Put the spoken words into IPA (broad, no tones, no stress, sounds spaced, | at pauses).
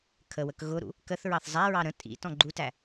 kʰ ə w ə k ɣ ʊ ɾ ṵ | k ə θ ɹ ɑ θ zˤ æ ɹ ɑ ɾ ə̃ tʼ ḭ t ɔ̃ ɡ͡ǃ u t æ